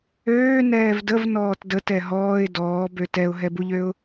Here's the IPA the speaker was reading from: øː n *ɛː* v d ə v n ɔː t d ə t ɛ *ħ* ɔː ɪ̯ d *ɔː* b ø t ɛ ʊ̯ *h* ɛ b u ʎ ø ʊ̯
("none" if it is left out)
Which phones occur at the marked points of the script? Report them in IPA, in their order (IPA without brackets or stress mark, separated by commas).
ɛː, ɦ, ɔː, ɦ